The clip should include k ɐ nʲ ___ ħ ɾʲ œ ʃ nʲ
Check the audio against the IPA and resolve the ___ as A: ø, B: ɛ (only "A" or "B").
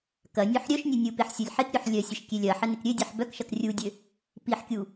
A